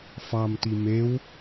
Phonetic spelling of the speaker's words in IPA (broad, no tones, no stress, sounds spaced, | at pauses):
f ɑ m t i m e w